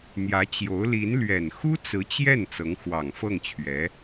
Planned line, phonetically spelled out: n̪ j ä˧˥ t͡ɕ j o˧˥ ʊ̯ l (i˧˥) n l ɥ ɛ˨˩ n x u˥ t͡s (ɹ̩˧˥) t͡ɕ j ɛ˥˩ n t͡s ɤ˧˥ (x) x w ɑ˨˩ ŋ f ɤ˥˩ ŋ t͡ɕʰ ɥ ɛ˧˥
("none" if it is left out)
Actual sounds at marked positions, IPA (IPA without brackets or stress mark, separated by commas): i˧˥, ɹ̩˧˥, ŋ